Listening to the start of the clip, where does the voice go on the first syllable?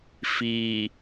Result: low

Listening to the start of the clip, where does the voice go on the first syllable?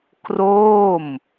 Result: falling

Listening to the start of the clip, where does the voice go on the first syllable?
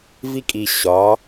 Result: high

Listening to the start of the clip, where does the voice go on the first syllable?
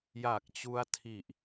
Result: low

